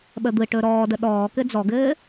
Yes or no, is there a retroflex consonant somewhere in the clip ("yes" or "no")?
yes